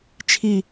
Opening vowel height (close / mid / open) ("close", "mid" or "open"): close